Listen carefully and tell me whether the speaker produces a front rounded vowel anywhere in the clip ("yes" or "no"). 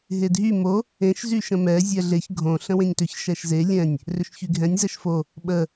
yes